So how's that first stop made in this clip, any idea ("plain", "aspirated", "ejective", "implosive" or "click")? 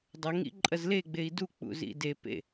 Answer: plain